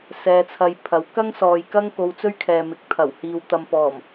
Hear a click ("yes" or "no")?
no